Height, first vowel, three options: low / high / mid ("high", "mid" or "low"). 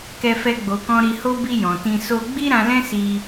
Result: mid